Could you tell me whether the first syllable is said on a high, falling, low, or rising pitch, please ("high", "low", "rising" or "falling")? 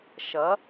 rising